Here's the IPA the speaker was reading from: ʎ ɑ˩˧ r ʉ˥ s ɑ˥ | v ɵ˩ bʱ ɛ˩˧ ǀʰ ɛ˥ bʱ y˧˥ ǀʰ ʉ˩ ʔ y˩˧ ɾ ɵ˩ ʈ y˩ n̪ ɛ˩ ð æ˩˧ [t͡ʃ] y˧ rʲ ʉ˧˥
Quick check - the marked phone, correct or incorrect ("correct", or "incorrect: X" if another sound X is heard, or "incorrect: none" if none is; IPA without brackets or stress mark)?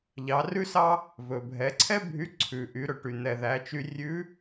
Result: correct